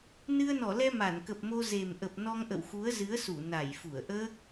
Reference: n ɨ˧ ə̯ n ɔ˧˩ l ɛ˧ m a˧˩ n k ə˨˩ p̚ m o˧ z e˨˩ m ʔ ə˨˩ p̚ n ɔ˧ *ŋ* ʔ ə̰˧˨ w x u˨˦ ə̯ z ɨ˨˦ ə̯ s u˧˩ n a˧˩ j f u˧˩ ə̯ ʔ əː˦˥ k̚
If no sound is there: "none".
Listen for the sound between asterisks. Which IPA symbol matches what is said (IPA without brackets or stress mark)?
ŋ